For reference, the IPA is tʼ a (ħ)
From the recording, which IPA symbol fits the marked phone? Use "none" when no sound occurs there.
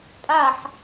ħ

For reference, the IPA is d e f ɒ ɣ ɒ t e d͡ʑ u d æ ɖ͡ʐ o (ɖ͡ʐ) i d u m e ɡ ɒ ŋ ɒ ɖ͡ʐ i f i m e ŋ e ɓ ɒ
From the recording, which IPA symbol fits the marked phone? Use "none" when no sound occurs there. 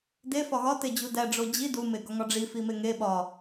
d͡ʑ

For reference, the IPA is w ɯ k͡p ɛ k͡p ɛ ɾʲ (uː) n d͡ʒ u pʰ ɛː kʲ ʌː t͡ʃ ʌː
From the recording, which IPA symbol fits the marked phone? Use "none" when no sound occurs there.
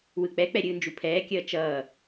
ɯː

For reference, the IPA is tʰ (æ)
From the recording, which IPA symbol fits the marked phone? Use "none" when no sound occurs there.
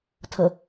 ə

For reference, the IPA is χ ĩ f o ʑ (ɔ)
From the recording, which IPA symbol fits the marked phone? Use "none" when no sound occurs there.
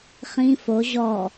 ɔ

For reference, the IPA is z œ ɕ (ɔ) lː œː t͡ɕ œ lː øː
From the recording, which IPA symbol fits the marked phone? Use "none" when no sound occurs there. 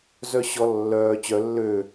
ɔ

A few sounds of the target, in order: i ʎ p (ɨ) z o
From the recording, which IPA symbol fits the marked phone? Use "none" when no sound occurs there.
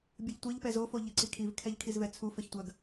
ɛ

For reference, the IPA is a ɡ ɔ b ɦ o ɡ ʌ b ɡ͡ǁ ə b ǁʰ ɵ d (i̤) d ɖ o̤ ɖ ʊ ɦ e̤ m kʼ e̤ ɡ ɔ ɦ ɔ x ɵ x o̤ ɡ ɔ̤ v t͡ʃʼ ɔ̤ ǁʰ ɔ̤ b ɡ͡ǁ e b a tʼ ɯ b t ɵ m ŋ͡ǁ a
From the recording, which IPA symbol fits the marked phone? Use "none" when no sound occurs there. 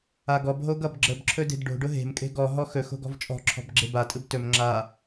e̤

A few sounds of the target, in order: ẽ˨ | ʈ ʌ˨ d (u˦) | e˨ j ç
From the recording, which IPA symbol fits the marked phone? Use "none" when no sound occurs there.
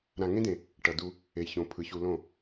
u˧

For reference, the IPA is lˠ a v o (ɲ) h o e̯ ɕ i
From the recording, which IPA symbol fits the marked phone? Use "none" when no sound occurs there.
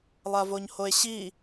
ɲ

